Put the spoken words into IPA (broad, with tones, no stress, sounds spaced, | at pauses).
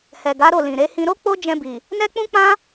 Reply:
h ɛ˨ ɡ a˨˦ ɾ o˦˨ l ĩ˨ ɾ e˨˦ h ĩ˧ ɾ o˦ k͡p o˦ d͡ʒ ɛ̃˧ b i˨ | n ɛ˦ k͡p ũ˦ k͡p ã˦